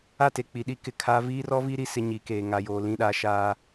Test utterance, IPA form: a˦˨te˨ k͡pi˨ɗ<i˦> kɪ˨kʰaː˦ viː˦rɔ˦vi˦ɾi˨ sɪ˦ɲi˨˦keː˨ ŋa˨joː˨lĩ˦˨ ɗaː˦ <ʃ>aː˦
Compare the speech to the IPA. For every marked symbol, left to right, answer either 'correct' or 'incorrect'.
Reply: correct, correct

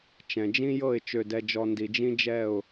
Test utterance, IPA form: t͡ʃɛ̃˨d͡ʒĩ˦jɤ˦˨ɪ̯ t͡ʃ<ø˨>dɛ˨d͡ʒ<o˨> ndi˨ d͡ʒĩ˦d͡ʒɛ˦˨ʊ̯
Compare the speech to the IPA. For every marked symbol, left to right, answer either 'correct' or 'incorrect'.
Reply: correct, incorrect: ɔ˨

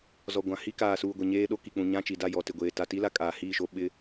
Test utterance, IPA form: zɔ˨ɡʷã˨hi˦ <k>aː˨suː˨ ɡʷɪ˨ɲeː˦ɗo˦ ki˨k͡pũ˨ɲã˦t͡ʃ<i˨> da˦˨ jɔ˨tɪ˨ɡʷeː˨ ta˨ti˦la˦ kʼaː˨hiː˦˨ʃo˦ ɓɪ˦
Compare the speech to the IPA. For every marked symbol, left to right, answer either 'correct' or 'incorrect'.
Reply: correct, correct

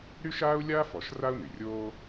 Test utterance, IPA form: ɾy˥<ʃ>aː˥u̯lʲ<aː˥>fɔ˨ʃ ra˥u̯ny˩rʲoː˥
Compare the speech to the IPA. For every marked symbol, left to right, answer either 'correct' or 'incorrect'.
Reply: correct, correct

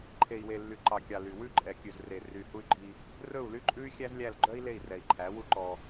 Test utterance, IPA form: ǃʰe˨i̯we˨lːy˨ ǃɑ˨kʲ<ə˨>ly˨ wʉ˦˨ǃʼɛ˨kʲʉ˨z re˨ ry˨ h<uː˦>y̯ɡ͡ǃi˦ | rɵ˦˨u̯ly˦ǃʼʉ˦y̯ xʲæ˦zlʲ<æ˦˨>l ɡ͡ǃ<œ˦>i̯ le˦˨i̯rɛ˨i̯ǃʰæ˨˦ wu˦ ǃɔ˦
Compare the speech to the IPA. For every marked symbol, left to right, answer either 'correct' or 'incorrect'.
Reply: incorrect: ɑ˨, incorrect: u˦, correct, correct

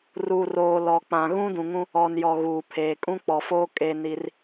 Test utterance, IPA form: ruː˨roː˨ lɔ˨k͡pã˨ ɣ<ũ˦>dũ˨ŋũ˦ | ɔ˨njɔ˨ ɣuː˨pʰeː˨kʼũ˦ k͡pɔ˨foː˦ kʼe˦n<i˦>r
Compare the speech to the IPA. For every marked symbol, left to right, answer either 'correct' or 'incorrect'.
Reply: correct, correct

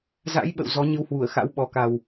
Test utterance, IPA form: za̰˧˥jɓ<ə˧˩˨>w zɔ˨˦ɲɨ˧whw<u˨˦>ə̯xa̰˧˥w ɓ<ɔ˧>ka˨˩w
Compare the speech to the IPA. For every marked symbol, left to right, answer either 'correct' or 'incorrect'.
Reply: incorrect: ə̰˧˨, incorrect: u˧˩, incorrect: ɔ˨˩

